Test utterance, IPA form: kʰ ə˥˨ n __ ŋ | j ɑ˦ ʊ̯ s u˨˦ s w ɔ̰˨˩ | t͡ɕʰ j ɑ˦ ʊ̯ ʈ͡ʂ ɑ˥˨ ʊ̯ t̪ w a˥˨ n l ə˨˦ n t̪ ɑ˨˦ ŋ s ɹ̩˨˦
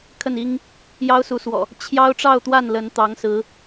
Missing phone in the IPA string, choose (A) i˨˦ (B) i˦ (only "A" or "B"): B